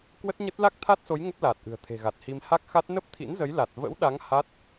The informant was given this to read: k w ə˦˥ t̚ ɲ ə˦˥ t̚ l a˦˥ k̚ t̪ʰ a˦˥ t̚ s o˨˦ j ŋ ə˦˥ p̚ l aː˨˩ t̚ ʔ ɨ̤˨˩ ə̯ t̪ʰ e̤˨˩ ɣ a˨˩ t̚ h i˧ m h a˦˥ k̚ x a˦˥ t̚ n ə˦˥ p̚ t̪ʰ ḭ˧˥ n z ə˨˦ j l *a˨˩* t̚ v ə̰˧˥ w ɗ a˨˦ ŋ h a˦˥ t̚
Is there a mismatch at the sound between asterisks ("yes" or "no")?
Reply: no